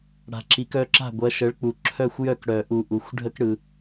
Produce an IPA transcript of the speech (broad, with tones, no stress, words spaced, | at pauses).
ɽa̤˨ǁi˨˦kœ˦ǁa̤˥˨ ɡʷɐ˨˦ʃə˨˦ɭk͡pu˨ ǁʰœ˥˨xʷ jœ˥˨kɽœ˨˩˦ʔu˨ ʔu˨˦xʷ ɖʱə˦k ɽɯ˨